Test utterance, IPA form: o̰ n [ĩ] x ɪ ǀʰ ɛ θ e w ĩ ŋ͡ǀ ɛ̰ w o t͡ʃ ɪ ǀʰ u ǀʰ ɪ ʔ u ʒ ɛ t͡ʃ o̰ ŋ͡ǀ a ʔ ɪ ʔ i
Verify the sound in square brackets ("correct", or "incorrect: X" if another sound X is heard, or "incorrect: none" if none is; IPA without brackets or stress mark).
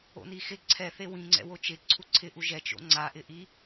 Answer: incorrect: i